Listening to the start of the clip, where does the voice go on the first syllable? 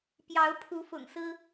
rising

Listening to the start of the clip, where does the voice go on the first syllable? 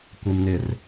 low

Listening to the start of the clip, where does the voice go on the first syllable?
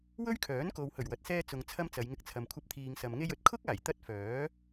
high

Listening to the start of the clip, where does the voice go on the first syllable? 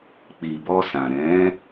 low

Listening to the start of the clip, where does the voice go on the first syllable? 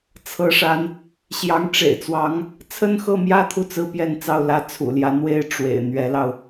rising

